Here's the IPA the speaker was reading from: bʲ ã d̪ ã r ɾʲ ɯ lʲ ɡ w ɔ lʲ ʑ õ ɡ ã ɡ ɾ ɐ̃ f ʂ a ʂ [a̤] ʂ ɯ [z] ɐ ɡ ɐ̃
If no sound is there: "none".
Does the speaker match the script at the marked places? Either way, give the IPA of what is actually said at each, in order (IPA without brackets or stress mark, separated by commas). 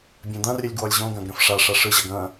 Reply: a, ʑ